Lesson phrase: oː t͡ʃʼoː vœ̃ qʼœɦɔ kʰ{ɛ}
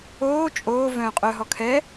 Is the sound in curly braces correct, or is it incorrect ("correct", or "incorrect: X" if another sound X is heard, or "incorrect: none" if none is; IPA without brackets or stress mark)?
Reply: correct